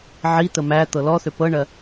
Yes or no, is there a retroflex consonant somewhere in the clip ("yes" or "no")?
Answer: yes